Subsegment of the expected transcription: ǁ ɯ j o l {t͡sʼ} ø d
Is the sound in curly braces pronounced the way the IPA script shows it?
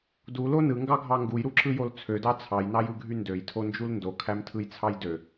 no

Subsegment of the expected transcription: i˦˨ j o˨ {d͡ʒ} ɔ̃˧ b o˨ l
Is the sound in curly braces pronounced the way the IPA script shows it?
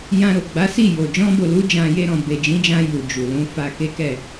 yes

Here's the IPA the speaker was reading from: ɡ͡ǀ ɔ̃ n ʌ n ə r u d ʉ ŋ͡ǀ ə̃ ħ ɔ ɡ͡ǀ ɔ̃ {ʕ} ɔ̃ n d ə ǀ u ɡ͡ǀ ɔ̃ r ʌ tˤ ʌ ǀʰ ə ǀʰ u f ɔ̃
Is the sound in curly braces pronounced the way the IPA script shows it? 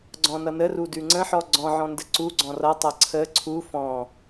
yes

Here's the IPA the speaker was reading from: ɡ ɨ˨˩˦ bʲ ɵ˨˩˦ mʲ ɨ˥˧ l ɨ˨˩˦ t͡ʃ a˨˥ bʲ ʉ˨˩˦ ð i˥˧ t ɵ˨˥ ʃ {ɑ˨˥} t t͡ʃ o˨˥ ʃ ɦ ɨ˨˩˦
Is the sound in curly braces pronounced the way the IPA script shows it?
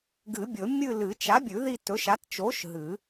no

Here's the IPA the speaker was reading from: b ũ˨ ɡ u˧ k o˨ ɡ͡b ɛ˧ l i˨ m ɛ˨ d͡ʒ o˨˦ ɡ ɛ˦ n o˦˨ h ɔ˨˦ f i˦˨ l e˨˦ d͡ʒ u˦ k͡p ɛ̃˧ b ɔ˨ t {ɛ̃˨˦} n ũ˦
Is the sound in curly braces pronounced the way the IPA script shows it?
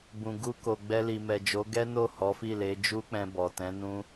yes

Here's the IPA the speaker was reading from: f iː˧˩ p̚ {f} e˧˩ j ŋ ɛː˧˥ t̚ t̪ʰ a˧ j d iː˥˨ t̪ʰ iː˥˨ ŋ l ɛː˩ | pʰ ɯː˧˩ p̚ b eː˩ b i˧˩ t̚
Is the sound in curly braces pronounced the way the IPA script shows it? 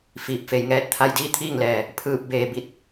yes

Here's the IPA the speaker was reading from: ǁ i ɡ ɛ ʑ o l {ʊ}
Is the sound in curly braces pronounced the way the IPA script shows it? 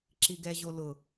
yes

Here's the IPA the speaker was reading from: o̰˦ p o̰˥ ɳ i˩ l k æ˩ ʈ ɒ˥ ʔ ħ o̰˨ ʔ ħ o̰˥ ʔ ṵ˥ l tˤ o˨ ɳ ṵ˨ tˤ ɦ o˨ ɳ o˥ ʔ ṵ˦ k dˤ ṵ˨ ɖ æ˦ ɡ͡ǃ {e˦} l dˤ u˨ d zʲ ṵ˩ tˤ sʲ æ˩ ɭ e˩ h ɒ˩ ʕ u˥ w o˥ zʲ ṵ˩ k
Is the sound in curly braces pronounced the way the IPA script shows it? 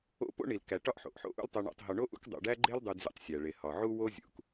yes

